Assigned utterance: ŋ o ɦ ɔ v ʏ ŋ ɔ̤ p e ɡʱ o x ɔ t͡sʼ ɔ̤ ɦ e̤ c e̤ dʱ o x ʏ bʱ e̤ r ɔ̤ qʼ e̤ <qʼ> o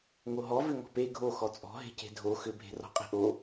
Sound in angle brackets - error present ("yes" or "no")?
yes